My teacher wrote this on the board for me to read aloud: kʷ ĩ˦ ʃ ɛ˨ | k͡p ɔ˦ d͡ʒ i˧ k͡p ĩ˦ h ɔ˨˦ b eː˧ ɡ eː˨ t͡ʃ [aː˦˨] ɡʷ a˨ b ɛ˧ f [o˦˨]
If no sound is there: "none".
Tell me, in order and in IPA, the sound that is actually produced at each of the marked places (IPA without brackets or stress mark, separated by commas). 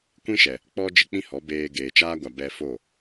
aː˧, o˦˨